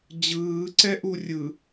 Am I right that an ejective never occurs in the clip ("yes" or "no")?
yes